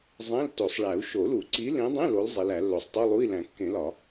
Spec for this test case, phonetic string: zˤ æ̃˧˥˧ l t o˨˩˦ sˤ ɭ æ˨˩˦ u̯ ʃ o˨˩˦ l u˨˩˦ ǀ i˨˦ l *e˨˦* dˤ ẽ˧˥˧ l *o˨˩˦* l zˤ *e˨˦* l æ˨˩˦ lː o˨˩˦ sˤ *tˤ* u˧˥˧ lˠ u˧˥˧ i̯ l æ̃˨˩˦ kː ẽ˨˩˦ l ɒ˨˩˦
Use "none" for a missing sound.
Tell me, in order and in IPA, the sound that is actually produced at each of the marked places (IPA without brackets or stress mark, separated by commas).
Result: ẽ˨˦, o˨˦, e˨˦, tˤ